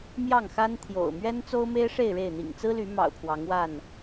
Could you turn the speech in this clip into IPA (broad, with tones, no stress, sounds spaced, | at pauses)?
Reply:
m j ɑ˥˨ ŋ x a˦ n t̪ʰ j o̰˨˩ ʊ̯ m ɥ ɛ˦ n t͡s o˦ ʊ̯ m e˦ ɪ̯ ʂ e˥˨ ɪ̯ ɻ e˥˨ ɪ̯ n̪ ḭ˨˩ ŋ t͡s ɹ̩˦ l y˨˦ m ɑ̰˨˩ ʊ̯ pʰ w ɑ˨˦ ŋ w a˥˨ n